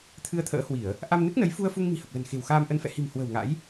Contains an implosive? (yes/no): no